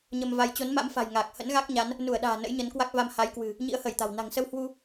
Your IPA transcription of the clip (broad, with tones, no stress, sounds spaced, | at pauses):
ɲ ə˧ m v a˧ j t͡ɕ o˨˦ n m a̰˧˥ m f a̤˨˩ j ŋ aː˨˩ k̚ h ə̰˧˥ n ɣ a˦˥ k̚ ɲ a˨˦ n | n u˧˩ ə̯ ɗ a̤ː˨˩ n ə̰˧˥ j ɲ ə˨˦ n k w a˦˥ k̚ v a˧ m h a˨˦ j k w ɨ̤˨˩ | ɲ ḭ˧˥ ə̯ h əː˧˩ j t̪ a̤˨˩ w n a̤˨˩ ŋ s ə˧ w h w u˧